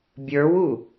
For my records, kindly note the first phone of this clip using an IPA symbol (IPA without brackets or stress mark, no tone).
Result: bʲ